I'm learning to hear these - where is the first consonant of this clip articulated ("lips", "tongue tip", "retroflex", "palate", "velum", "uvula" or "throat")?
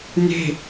tongue tip